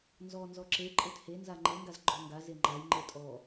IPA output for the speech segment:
n z ɔ n z ɔ ǁ e ǃʼ e t h e n z a ŋ͡ǃ e ŋ ɡ a z ɡ͡ǃ ɔ ŋ ɡ a z e ŋ͡ǃ a j ŋ͡ǃ e tʼ ɔ

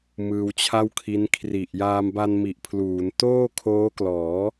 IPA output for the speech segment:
m ɯː˧ w t͡ɕʰ a˥˩ w kʰ i˦˥ n kʰ r i˨˩ ʔ j aː˧ m b a˧ n m i˨˩ ʔ pʰ l uː˩˦ n t oː˥˩ kʰ oː˦˥ k l ɔː˩˦

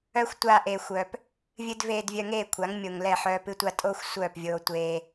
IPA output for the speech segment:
œ˦ xʷ tʷ aː˧ ʔ eː˨ xʷ œ˨ p | vʲ ɨ˧ d v eː˧ d vʲ œ˧ ŋ eː˦˨ kʷʰ a˨˦ ŋ mʲ o˨ ŋ l ɛ˦˨ ħ œː˧ p ɨ˧ tʷ a˧ tʼ oː˦ xʷ sʷ œː˦˨ p vʲ oː˧ tʷ eː˧

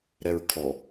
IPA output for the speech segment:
ɾ ɛ ɹ kʰ ɔ

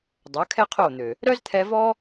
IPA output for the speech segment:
dˤ œ˨˦ kʰ ɛ˦ qʰ o˦˨ n̪ ø˨ | ɾ œ˦ z t̪ʰ ɛ˧ v ɔ˦

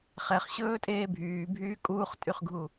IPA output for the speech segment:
χ ɛ χ ɕ ɵː tʼ eː bʱ yː bʱ yː kʼ uː χ tʼ y χ ɡʱ u

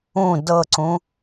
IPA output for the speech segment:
ũ d ɤ ǀ ũ

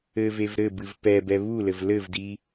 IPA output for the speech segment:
ɘ v e v ɾ ɘ b ɨ v p ɛ b ɛ β u l ɘ v l ɘ v d i

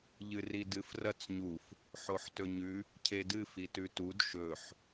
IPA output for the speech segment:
ʎ ɨ r i d ɨ f r ɐ t͡s ɲ u f | ħ o ħ t ɵ ɲ ʉ | cʰ e d ɨ f i t ʉ t u d ʃ ɵ ħ

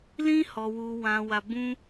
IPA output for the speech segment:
l ĩ˦ h ɔ˧ w u˧ w ã˧ w a˧ b ũ˦

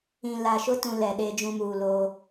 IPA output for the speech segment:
ĩ˨ l a˨ ʃ ʊ˦ t ũ˨ l ɛ˨ ɗ e˦ d͡ʒ ũ˦ m uː˨ l oː˦

